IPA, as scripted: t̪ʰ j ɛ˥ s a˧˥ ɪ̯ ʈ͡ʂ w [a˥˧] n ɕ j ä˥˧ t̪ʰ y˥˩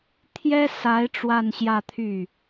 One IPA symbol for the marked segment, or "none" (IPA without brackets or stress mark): a˥˧